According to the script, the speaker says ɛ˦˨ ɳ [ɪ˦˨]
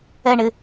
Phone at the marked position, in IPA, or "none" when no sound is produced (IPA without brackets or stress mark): ɪ˦˨